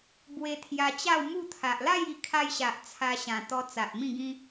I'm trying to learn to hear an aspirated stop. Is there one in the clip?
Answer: yes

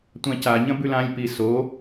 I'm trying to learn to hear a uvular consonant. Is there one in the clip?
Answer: no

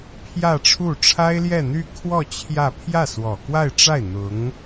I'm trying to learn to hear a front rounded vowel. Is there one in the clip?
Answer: yes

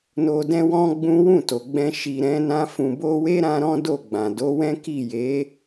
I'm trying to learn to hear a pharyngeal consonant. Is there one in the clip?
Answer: no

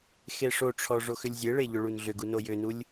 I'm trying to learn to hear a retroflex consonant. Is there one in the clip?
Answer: yes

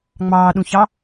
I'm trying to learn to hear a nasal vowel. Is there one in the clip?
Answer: yes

